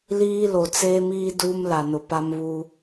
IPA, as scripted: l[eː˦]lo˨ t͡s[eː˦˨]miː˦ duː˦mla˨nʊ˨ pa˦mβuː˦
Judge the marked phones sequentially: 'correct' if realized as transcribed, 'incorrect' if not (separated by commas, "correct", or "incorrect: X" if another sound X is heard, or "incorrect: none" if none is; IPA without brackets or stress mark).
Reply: incorrect: iː˦, incorrect: eː˦